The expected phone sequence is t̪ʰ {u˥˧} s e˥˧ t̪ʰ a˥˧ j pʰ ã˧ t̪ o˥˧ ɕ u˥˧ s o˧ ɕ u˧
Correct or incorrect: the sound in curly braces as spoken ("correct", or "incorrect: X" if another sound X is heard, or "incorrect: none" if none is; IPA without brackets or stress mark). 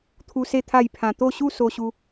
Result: incorrect: u˦